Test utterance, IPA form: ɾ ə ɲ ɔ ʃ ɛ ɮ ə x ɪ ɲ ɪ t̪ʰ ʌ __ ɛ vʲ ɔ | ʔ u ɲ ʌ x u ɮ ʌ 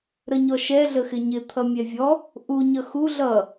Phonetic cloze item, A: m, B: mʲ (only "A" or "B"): B